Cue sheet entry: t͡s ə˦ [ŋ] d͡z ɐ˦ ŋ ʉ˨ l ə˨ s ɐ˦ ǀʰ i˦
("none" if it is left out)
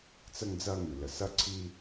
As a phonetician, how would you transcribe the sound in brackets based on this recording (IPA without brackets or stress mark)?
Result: ŋ